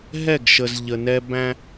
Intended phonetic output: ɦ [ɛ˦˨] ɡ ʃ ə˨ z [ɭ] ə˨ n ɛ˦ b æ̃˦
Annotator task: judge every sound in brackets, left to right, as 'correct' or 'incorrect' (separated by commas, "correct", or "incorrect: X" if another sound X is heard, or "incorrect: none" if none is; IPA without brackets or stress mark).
correct, incorrect: ʎ